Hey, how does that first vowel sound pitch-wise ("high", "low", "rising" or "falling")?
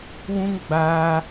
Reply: high